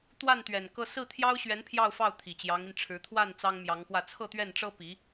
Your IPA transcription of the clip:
t̪wa˥˩nt̪ɥɛ˨˩n kɤ˥˧ sɹ̩˥˩t̪ʰjɑ˥ʊ̯ɕɥɛ˧˥n pʰjɑ˥˧ʊ̯fɑ˥˩ʊ̯ t̪ʰi˨˩t͡ɕjɑ˧˥ŋi˧nʈ͡ʂʰɻ̩˧˥ t̪ʰwa˥˩n t͡sɑ˥ŋmjɑ˧˥ŋxwä˥˧ t͡sʰɤ˥˧t̪ɥɛ˥˩nʈ͡ʂɤ˥ pi˧˥

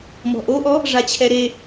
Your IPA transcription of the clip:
mɔ̤ʔoʔɔ | ʐat͡ɕʰɛɾe

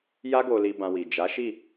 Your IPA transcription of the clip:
ja˦ɡo˧li˧ bã˧wi˨ d͡ʒa˨˦ʃi˦˨

